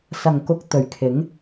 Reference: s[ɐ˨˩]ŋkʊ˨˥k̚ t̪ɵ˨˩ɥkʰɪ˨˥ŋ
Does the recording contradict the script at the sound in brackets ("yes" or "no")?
no